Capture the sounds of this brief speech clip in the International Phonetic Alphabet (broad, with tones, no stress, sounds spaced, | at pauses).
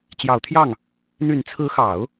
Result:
t͡ɕ j ɑ˨˩ ʊ̯ t̪ʰ j ɑ˥˩ ŋ | n̪ y˨˩ n t͡sʰ ɹ̩˧˥ x ɑ˨˩˦ ʊ̯